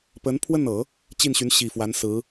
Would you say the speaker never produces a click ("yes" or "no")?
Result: yes